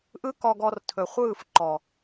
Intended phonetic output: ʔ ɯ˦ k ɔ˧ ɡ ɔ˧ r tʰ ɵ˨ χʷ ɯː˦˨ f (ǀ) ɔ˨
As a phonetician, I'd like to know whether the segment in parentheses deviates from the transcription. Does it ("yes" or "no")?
yes